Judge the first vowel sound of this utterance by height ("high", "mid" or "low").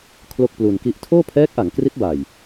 mid